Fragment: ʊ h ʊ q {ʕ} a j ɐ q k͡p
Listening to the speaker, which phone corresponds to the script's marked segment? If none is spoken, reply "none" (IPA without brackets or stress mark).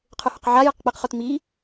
ʕ